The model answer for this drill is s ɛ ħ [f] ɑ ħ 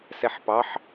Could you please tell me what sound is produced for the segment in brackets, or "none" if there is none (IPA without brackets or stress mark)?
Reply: p